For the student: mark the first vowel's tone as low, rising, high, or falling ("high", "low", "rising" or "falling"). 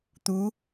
rising